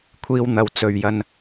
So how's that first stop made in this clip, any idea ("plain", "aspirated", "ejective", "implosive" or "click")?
aspirated